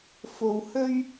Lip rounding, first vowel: rounded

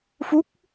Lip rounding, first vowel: rounded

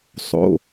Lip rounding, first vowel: rounded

